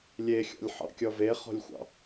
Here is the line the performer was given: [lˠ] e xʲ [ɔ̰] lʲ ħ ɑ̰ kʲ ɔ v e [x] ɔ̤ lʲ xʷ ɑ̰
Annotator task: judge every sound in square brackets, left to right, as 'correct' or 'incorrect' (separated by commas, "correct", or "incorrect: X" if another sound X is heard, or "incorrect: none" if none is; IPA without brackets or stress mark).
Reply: incorrect: lʲ, correct, incorrect: χ